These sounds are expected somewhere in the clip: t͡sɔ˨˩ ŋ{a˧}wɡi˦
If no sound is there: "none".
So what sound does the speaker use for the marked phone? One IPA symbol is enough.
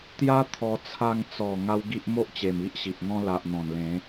a˦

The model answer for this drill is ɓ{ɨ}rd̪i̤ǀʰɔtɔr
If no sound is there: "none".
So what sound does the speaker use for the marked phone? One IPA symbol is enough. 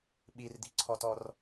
i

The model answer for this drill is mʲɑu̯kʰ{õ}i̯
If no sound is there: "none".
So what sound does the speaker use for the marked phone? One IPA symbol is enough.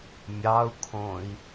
õ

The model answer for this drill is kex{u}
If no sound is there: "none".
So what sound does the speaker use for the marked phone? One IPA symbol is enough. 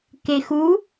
u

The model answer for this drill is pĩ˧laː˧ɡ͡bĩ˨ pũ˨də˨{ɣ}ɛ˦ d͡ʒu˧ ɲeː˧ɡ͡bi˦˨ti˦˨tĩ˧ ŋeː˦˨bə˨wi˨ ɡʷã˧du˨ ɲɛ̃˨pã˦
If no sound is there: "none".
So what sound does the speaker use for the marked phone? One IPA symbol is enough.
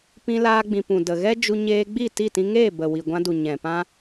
ɣ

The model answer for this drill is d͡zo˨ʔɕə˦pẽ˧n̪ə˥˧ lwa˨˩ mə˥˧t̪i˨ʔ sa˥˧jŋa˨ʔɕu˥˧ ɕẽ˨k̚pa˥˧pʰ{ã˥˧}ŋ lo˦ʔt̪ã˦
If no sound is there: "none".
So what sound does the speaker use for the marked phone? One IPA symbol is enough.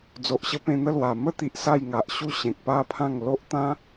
ã˥˧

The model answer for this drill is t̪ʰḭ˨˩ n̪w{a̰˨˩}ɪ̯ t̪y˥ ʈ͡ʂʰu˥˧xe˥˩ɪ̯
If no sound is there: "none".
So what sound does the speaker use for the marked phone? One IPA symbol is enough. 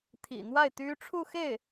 a˥˩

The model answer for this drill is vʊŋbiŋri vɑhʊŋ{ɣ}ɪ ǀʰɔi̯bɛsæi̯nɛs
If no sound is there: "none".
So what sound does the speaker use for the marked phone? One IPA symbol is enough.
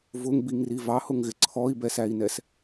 ɣ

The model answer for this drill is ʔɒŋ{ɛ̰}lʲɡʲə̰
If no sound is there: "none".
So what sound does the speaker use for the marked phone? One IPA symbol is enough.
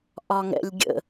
ɛ̰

